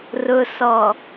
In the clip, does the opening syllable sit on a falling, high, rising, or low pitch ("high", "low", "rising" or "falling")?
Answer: low